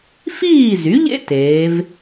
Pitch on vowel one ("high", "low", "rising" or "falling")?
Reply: falling